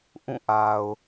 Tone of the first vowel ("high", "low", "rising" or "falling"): falling